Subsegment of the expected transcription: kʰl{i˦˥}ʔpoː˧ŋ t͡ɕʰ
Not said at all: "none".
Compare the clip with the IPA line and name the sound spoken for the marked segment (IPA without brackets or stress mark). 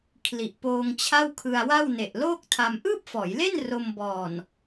i˨˩